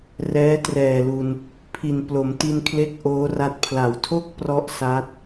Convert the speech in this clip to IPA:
r ɛː˦˥ t r ɛː˨˩ l u˧ n | pʰ i˨˩ n p l o˩˦ m t i˧ n kʰ l e˦˥ k̚ ʔ oː˦˥ r a˦˥ t̚ pʰ l a˩˦ w tʰ o˥˩ k̚ p r ɔ˥˩ ʔ s a˦˥ t̚

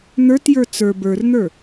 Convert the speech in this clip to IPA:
n̪ ə˞ t j ə˞ t͡s ə˞ b ə˞ r n̪ ə˞

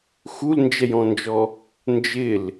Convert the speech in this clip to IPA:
x u l n d͡ʒ ɛ j ɔ̃ n d͡ʒ ɔ | n d͡ʒ ɪ l

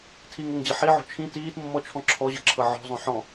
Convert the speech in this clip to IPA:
tʰ i ŋ ɤ ŋ d͡ʑ ɐ ħ i ʕ o̤ t͡ʃʰ ĩ t iː t mː ɔ t͡ʃʰ ɔ̃ ǁʰ ɔ ʑ ɤ ǁʰ ɤ ʕ ɔ̤ zˤ õ ħ ɔ̃

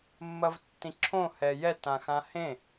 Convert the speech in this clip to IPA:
mː ɐ v tː ĩ ǁʰ õ h ɛ j ɛ t ã x ã h ẽ

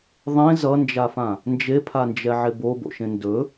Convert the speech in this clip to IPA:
ðˤ ẽ z ʌ n d͡ʒ a f ã | n d͡ʒ e pʰ a n d͡ʒ ɛ ʕ e b o b o̰ ʃ ẽ n d ɵ

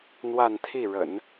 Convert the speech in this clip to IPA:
n̪ w a˥˧ n t̪ʰ i˥˩ ɻ ə̰˨˩˦ n

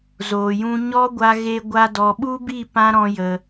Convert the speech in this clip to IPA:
z oː˨ j ũ˧ ɲ ɔ˦ ɡʷ a˧ ɣ e˧ ɡʷ a˧ d ɔ˨ ɓ u˦ b i˦˨ p ã˦ ɾ ɔ̃˧ j ə˨

